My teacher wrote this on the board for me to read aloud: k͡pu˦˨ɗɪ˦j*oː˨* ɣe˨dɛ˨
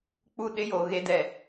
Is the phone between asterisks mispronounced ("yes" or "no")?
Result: no